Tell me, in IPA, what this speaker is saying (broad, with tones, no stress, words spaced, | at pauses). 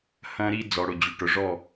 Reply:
hɐ̃˦ɾi˦ d͡zɔ˨ɽʊ˦˨ d͡ʑʉ˨ʈʊ˨ʐɔ˦˨